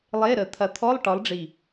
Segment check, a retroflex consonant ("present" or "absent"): present